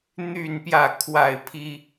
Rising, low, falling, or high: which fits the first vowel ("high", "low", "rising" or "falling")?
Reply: falling